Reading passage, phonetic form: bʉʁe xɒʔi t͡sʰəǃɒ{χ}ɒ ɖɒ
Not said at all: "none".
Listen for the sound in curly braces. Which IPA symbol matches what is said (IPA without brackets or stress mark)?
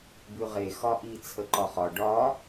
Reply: χ